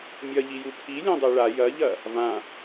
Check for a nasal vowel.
present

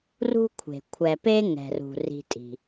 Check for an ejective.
present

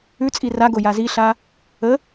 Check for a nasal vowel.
absent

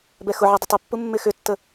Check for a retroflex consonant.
absent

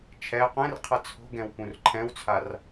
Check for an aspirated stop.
present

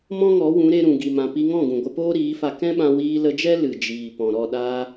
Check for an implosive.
present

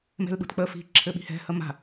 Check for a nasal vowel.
absent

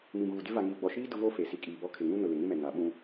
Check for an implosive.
present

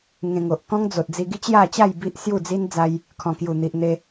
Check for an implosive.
absent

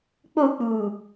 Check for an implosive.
absent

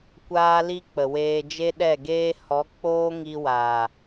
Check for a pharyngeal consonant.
absent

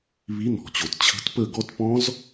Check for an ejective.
absent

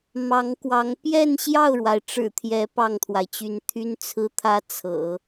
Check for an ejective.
absent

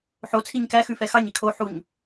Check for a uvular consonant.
absent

